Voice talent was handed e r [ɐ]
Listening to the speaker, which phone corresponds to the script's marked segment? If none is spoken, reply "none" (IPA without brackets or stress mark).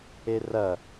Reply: ɐ